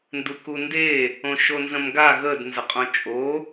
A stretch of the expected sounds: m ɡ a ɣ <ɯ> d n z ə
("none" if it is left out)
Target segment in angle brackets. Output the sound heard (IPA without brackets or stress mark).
ə